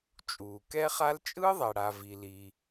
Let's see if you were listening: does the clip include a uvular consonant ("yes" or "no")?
yes